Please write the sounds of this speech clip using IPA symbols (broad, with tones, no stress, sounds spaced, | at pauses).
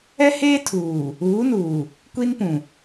ɛ˦ h eː˦ tʰ uː˨ | uː˨˦ n uː˨ | kʷ i˦ n p ũ˨